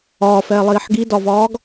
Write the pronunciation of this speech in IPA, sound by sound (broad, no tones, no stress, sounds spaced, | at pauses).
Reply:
ɒː f ɛː lˠ iː ħ ɡ i d ɒ v ɒː ɡ